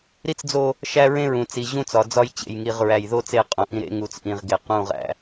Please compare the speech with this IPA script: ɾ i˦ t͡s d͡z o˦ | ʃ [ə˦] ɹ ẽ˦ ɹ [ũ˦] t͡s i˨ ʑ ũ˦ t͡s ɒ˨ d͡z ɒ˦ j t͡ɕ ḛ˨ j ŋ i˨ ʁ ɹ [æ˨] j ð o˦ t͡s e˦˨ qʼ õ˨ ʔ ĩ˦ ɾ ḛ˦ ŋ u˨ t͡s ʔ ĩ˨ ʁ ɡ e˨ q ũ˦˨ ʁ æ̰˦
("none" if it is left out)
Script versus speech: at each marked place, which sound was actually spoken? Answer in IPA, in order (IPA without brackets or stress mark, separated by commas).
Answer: æ˦, ũ˨, æ˨